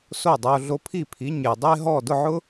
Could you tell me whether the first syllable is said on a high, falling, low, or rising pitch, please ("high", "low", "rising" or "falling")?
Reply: falling